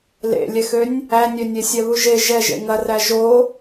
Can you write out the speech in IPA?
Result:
lḛlʲɛxønʲ | ænʲønʲe sʲɛβuʒe ʒɛʒḛ ŋɐræ ʒo

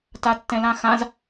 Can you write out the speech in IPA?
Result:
tatːɛ̃lãxãz

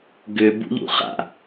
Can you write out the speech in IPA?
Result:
ɡʏ bṵʎṵχa̰

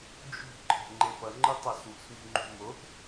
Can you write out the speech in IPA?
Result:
d͡ʒṳ ǃʰe̤ŋ͡ǃepʌŋ͡ǃɯ tˤaswṳs mṳŋ͡ǃṳmop

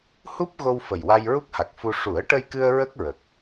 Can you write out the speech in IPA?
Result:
hu˦˥p̚ɣo˧wfə˨˩j wa˧jɹu˦˥k̚ha˨˩k̚fu˧ ʂu˨˩˦ə̯ʈə˧jkɨ˧ə̯ ɹə˦˥k̚ɹə˨˩k̚

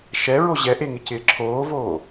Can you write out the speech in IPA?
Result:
ʃɛɹo ʑɛʔeŋɪcɪː ǁʰoːvoː

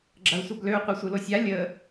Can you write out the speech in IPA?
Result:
ɡ͡ǁɐu̯sʷɐbløu̯ qʷɯsʷɯlosʲa lʲə

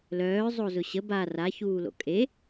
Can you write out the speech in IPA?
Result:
lœːzˤozʊ ɕə ba raçuːlo̰ kʼe

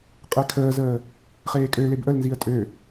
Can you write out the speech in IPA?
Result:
qʼɛkʰəːzəː | χeːkʼøleb ʔəlnziə̯ tʼø

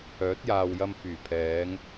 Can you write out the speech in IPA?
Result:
œː˨˥t̚jaː˨w jɐ˧mfyː˨˩ pʰɛː˨˧ŋ

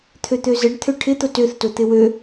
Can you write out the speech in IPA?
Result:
t̪ʰøt̪øzɘɖ t̪ʰøʈʰɪ t̪otøθ tot̪ɪwø

